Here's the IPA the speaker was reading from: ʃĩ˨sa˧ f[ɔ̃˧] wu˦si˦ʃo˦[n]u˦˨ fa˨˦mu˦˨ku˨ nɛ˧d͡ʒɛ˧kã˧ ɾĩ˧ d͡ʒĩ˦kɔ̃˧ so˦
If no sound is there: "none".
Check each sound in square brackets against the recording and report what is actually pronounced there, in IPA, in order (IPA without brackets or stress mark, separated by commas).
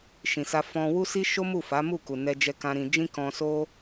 ɔ̃˧, m